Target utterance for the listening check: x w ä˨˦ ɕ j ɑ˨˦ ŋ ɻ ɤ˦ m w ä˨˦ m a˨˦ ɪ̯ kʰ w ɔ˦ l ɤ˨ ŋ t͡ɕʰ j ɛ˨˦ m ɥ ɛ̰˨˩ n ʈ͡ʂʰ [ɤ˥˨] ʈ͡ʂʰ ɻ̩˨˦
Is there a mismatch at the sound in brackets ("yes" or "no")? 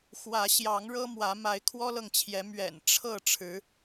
no